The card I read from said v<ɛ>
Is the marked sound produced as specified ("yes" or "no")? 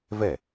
yes